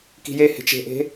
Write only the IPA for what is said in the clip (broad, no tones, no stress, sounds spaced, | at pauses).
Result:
k i̤ j e h e̤ t͡ʃ e̤ ʔ e̤